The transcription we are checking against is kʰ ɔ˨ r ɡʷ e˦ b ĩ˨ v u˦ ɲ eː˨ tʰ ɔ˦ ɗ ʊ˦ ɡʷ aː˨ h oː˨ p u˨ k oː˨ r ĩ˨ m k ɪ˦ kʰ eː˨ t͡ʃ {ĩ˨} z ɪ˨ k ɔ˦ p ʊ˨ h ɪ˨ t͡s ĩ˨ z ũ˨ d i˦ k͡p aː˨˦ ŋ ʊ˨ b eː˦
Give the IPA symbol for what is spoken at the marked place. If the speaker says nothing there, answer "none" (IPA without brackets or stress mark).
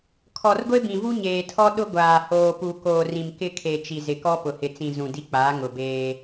i˨